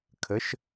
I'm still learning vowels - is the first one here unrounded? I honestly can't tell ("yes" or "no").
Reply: yes